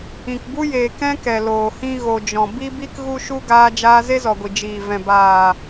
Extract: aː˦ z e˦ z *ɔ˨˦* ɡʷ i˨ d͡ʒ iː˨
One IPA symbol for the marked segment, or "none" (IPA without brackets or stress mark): ɔ˨